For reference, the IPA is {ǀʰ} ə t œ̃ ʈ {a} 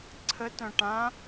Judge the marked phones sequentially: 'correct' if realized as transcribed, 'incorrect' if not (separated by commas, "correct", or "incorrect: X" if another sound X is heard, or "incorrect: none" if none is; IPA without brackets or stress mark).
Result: correct, incorrect: ã